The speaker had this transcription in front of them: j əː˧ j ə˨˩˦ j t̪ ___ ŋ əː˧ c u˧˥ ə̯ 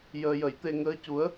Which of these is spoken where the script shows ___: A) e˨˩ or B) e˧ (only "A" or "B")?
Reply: B